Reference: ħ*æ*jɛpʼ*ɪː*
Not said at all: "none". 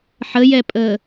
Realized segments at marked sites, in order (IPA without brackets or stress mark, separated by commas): ə, əː